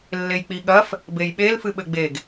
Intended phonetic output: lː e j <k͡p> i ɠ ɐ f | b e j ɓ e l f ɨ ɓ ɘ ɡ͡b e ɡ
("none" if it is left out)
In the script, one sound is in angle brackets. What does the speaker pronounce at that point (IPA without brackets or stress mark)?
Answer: k͡p